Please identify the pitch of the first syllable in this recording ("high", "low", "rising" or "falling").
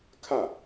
falling